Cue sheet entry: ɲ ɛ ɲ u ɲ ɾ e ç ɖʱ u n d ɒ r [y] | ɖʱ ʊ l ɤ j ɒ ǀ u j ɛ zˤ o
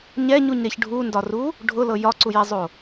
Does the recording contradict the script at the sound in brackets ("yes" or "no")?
yes